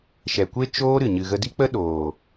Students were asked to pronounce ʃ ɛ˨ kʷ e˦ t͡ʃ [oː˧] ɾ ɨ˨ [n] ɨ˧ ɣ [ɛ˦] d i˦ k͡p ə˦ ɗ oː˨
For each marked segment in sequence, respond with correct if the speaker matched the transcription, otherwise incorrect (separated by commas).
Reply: incorrect, incorrect, incorrect